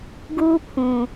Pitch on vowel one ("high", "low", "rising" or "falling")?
high